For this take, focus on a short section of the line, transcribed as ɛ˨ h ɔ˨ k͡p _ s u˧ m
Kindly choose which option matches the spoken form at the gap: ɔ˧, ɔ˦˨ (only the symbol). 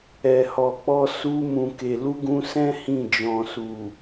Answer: ɔ˧